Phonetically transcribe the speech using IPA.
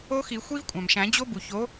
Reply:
o˦˥xi˨˩˦ xʷi˦˥vkʷʼæ̃˩mʃæ̃˨˩˦ d͡ʑo˦˥bu˩ço˨˥

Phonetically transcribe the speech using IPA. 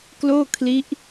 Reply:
kloː˥˩kʰli˦˥ʔ

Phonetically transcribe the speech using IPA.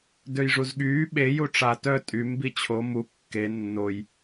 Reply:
døjʐuzɠyː ɓe juʈ͡ʂa tœ tʼym bit͡ɕʰo mu kːe nːoj

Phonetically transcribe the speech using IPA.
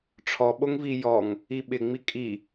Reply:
ʈ͡ʂʰɔɓoŋvi jɔŋ | iɓɪŋ͡mi kʼi

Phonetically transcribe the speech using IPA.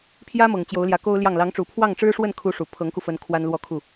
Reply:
pʰjä˥mɤ˨˩ŋ t͡ɕjo˧˥ʊ̯ljä˧˥ko˥ʊ̯ljɑ˥˩ŋ lɑ˧˥ŋʈ͡ʂu˨˩ pʰwɑ˥˩ŋʈ͡ʂɻ̩˥ʂwə˥˩nkʰu˧˥ ʂu˨˩ pʰɤ˧˥ŋku˧fə˧˥n kʰwa˥nlwɔ˥˧kʰu˥˩

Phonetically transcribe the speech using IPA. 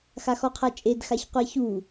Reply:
xaxɔqʰat͡ʃʼed xaçqʷɛçu

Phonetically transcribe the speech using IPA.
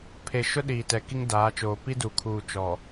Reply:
pʰe˨ʃʊ˦ ɗiː˨tɛ˨ ki˦ŋdaː˨˦t͡ʃoː˨ pi˦du˨kʰuː˨ t͡ʃɔ˨

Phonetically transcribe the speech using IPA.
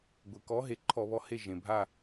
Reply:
ɡʷe˩kɔ˨˦ ɦe˩ǃʰɔ˧˩˧βɔ˨˦he˦˨ ʒẽ˩bʱa˦˨

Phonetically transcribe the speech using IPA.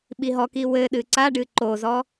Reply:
ɓiɦɔki wɘɗɨ ǀaɖɨ ǃozɔ

